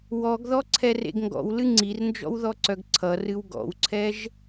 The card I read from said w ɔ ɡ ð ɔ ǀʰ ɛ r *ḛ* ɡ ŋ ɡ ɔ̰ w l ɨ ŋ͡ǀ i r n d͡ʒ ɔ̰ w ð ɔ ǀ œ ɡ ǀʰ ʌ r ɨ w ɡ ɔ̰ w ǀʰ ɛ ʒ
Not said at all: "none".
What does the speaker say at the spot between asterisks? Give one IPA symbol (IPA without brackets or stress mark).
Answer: ḛ